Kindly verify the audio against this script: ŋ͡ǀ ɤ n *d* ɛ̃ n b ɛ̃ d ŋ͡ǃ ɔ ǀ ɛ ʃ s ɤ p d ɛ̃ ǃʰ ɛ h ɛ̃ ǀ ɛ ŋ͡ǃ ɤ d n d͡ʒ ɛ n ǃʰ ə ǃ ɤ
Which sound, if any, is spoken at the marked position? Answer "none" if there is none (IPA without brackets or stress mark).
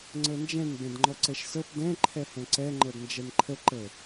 d͡ʒ